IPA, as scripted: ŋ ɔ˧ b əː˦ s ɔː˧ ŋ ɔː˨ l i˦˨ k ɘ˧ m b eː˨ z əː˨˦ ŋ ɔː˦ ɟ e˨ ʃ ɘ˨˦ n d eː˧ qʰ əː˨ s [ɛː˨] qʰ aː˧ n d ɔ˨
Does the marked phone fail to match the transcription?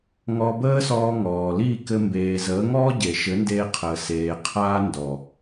yes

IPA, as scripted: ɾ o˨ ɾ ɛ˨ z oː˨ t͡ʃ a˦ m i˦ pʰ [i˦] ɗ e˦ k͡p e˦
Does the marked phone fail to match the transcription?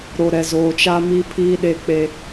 yes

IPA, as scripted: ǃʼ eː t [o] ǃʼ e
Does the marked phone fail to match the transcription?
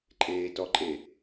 yes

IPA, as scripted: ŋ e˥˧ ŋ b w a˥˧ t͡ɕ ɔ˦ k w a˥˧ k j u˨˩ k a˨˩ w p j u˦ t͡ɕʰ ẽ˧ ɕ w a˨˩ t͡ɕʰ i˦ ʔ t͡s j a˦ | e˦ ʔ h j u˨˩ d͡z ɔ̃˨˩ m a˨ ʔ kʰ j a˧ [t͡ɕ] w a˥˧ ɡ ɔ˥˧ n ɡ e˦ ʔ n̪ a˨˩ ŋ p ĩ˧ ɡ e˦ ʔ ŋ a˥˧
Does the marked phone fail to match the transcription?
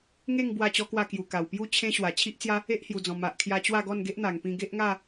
no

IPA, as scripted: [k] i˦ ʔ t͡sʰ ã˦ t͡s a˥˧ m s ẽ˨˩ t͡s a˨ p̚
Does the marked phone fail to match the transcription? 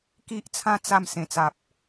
no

